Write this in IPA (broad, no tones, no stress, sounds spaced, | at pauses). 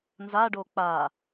n z a ɖ o k͡p a